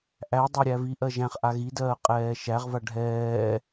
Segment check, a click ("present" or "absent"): absent